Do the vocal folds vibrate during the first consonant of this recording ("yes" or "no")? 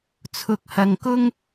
no